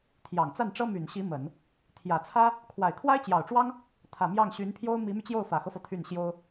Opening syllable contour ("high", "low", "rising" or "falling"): low